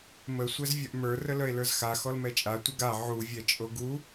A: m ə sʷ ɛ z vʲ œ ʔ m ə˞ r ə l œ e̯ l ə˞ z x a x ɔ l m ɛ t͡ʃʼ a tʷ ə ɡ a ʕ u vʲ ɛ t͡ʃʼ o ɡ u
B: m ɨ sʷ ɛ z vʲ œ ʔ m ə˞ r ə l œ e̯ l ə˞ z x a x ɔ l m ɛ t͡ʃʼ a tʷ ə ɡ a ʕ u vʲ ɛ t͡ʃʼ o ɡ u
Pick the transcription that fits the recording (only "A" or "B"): A